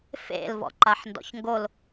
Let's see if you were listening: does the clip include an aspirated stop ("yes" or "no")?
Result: no